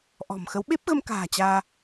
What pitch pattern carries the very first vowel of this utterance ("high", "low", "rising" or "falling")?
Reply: low